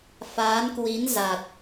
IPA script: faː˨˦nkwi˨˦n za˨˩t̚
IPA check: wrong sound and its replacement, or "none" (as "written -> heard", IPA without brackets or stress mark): none